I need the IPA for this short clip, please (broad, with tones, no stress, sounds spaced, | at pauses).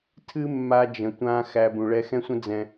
tʰ ɨ˦ mː a˧ d͡ʒ ə̃˨ tʷ ã˧ x æ˧ b ũ˨ ɭ ɛ˧ x ɛ̃˦ sʷ ə̃˦ d͡z ɛ̃˧